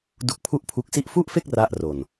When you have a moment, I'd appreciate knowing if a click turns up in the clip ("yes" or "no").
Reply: no